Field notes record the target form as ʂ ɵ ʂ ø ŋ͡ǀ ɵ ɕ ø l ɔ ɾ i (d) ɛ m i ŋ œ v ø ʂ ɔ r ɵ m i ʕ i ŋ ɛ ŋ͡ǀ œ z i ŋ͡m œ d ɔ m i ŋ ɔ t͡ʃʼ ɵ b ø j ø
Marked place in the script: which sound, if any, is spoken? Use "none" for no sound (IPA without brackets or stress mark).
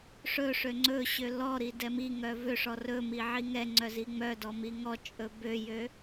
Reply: d